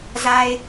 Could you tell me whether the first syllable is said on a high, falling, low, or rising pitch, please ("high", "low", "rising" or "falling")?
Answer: high